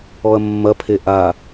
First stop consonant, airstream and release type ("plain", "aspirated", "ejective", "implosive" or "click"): aspirated